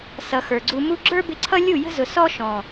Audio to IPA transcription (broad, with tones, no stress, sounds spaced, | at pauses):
s ʌ˨ x ə˞˨ ɡ͡ǀ u˧ m u˦ ɡ͡ǁ ə˞˦ b ɪ˧ ǀʰ ʌ˦ lʲ u˦˨ j ə̤˦ z ʊ˨ s ɔ˦ ʃ ɔ̃˨